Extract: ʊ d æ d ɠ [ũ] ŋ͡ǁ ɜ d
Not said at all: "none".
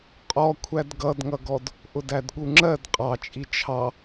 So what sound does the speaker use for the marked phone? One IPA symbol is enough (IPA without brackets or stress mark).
u